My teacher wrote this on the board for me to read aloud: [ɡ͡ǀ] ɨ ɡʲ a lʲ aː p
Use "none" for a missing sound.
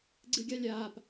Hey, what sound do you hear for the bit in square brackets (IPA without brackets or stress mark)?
ɡ͡ǀ